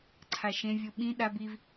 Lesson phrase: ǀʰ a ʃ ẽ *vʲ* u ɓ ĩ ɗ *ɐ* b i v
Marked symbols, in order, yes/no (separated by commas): yes, no